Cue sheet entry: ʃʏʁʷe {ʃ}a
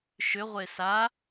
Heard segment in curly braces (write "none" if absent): s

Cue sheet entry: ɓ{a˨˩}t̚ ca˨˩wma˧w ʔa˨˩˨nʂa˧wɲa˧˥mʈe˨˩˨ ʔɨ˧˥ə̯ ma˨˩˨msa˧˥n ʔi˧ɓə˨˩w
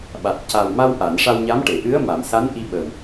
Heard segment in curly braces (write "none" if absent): a˨˩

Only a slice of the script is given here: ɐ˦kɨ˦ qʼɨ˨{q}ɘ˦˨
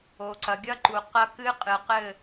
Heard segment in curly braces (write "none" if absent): q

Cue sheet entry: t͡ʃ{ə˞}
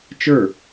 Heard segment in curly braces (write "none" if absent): ə˞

